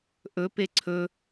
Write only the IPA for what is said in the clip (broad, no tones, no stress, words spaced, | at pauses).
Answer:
ʔɵpe ǀʰɵ